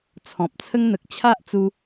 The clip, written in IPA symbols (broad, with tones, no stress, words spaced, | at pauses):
t͡sʰɔ̃˨p̚t͡sʰə˦ŋn̪ə˨k̚ t͡ɕʰa˦ʔt͡su˧